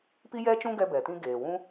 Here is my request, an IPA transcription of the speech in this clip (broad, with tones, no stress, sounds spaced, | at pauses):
p i˦ j ɛ˦ t͡ʃ ũ˦ ɡ ɛ˧ b ɛ˨ t ĩ˧ ɡ eː˨ w ũ˦